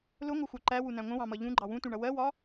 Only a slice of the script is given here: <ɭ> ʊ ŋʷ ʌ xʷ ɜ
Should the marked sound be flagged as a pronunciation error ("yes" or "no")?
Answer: yes